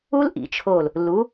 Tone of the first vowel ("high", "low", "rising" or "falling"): high